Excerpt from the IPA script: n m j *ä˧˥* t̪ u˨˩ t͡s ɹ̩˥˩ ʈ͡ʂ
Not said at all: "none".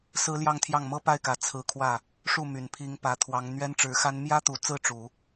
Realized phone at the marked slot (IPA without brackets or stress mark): ä˥